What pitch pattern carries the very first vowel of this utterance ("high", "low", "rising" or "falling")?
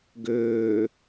low